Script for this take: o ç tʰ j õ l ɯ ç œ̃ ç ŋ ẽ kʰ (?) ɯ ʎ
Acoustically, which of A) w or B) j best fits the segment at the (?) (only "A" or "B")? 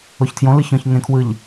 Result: A